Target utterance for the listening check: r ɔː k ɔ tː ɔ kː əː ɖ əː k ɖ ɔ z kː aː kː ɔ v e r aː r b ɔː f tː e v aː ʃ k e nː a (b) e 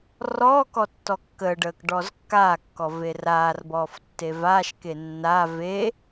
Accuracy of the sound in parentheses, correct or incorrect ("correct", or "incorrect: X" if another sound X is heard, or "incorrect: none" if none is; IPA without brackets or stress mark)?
incorrect: v